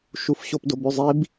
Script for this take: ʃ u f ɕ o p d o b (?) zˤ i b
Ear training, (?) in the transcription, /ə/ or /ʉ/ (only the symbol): ʉ